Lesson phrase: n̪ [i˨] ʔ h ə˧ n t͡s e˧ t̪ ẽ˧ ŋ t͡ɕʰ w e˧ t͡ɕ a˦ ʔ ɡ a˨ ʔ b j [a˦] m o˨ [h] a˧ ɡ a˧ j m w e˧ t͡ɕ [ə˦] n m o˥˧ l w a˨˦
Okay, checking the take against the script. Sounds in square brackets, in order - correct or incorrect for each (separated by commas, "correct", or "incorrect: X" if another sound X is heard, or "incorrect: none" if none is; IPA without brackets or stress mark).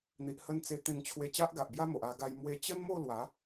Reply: correct, correct, incorrect: ʔ, correct